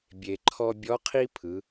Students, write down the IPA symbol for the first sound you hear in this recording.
bʲ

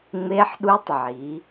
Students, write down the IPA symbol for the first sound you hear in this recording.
ŋ͡m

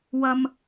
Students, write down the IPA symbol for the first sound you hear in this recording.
w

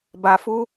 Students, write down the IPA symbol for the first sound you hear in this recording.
b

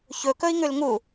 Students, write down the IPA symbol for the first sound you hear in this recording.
ç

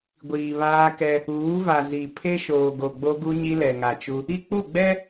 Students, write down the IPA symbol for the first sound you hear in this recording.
ɡʷ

